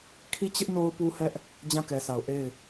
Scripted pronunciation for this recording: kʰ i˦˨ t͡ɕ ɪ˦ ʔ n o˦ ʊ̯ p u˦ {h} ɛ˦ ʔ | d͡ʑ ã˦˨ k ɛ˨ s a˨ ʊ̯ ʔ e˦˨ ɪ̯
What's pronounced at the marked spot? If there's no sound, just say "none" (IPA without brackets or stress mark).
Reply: h